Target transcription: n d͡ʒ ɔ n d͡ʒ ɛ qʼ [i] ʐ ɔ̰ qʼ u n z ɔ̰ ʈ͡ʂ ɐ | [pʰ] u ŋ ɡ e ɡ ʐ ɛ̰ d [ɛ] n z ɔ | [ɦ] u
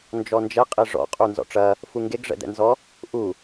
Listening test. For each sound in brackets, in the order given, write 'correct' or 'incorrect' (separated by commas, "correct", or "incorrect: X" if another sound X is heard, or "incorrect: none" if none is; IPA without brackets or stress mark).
correct, incorrect: f, incorrect: ɛ̰, incorrect: ʔ